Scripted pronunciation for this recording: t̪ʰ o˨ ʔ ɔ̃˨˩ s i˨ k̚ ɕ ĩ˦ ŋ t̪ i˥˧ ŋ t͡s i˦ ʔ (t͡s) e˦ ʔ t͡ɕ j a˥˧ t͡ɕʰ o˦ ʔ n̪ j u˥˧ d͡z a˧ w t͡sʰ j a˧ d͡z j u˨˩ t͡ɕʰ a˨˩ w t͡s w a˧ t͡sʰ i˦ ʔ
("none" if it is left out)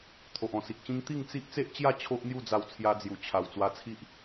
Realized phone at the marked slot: t͡s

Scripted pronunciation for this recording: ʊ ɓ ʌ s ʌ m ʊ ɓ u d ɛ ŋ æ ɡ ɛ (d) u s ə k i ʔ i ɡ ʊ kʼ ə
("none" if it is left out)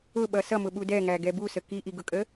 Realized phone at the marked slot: b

